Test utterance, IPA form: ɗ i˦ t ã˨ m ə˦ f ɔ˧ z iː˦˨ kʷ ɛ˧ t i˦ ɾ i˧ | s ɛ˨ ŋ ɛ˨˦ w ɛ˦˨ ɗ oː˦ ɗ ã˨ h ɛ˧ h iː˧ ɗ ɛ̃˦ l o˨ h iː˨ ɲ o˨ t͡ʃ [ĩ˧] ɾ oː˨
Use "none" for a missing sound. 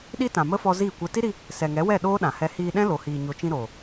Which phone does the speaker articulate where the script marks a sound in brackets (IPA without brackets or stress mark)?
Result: ĩ˧